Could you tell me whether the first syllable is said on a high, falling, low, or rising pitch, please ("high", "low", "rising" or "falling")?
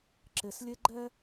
low